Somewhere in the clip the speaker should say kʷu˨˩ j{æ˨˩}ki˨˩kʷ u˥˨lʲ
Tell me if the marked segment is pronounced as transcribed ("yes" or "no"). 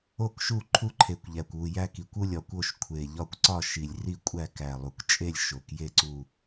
no